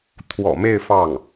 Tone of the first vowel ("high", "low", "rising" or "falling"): low